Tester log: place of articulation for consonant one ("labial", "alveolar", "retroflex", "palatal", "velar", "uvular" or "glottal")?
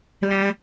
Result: alveolar